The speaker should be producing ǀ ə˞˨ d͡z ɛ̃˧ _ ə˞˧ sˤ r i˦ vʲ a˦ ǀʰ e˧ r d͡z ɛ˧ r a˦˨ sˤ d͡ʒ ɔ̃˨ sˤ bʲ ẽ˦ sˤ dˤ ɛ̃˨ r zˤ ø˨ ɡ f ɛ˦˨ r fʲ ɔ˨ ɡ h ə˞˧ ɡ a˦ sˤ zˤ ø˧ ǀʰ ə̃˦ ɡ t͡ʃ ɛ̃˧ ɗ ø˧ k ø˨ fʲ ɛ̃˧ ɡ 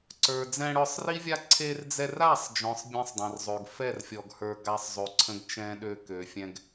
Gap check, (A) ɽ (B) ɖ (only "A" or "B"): A